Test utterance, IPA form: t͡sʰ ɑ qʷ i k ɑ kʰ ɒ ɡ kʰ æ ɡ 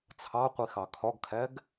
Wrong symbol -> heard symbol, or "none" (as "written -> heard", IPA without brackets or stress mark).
k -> x